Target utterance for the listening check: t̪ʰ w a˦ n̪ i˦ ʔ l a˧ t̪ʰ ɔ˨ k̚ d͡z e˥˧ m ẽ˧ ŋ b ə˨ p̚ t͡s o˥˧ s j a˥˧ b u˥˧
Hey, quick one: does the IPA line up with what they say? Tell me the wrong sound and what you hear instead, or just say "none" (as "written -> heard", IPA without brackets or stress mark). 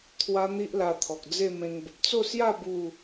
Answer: none